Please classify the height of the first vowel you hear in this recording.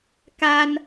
low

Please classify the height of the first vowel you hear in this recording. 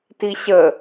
high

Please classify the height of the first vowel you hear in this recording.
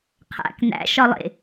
low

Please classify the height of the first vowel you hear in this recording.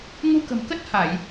high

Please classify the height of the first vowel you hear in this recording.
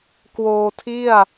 mid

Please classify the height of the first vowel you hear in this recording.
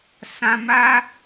low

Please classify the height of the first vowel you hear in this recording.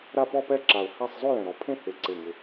low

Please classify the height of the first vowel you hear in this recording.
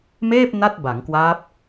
mid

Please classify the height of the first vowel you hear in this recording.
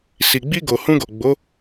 high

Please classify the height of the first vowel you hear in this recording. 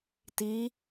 high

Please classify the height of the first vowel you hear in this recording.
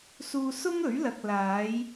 high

